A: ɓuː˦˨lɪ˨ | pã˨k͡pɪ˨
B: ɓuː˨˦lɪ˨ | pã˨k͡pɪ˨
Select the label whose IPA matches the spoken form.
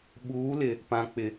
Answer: B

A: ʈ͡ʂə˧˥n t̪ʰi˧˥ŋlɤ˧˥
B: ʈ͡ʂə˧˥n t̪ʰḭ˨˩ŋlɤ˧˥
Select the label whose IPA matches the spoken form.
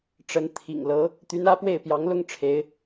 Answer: B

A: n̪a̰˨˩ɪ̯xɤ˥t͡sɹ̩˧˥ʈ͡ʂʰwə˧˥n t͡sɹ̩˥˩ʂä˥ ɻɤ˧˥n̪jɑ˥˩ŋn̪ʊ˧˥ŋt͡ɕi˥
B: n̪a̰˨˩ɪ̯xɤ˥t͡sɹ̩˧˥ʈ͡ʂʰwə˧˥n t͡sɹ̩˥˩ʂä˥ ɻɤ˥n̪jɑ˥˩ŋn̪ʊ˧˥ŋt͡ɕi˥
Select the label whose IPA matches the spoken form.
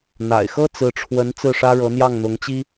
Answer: A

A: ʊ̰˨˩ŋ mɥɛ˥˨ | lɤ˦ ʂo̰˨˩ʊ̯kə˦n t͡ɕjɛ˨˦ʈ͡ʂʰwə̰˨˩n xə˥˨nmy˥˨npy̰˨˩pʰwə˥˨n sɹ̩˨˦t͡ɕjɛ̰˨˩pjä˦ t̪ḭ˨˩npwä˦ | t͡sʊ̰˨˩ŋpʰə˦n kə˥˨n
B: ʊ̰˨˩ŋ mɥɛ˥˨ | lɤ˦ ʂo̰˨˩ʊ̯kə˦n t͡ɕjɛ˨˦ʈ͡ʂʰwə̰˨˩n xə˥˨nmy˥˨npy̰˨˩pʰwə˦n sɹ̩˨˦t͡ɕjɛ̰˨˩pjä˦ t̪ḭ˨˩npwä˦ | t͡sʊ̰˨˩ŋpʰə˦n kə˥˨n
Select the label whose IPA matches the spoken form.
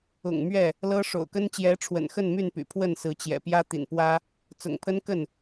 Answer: A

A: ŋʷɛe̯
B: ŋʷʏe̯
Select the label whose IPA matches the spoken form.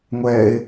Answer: A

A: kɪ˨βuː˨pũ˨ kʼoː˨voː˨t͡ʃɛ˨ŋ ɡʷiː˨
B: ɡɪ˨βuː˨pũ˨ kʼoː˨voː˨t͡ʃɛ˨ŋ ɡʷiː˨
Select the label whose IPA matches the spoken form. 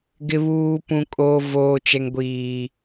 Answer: B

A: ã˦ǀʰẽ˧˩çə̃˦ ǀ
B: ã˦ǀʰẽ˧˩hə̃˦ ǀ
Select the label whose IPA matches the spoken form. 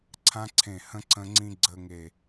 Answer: B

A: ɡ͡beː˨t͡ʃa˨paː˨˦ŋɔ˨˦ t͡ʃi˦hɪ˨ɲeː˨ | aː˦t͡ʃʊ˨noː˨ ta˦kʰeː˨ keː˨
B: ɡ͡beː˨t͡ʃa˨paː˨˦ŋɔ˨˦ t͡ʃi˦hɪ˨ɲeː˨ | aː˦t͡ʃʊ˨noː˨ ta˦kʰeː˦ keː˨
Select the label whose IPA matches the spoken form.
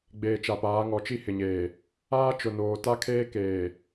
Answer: B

